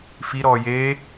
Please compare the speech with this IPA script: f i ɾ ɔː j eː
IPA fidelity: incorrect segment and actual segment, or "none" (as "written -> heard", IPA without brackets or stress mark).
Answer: none